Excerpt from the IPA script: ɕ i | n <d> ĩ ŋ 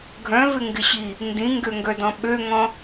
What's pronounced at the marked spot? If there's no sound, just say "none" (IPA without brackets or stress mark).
d